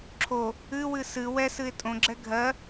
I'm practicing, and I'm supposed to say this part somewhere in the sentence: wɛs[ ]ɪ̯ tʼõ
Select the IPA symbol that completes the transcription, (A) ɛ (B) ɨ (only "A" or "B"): B